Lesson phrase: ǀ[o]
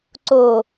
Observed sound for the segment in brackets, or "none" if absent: o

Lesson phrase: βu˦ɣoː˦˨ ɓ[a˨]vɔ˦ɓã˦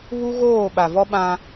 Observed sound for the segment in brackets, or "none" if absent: a˨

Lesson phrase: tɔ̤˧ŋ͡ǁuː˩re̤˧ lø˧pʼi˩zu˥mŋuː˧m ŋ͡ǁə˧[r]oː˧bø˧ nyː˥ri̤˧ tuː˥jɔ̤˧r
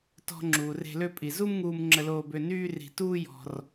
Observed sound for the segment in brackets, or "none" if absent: l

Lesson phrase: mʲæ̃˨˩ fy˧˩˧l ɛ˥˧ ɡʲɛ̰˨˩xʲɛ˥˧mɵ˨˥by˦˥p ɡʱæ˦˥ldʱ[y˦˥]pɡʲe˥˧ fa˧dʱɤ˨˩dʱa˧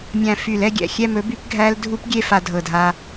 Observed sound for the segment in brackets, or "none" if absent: u˦˥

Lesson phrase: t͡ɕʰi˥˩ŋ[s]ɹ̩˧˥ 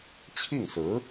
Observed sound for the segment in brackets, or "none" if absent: s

